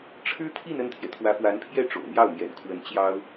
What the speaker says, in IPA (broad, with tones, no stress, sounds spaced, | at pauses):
ʈ͡ʂʰ ɻ̩˥ t̪ʰ i˥˧ n ə˥˩ n t̪ʰ j ɛ˩ t̪ʰ w ä˧˥ f w a˧˥ n pʰ j ɛ˥˩ ʈ͡ʂ o̰˨˩ ʊ̯ n̪ j ɑ˥˩ ʊ̯ n̪ j ɛ̰˨˩ n kʰ w ə˧˥ n t͡ɕ j ɑ˥ ʊ̯